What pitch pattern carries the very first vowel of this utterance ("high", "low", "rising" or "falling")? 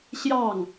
falling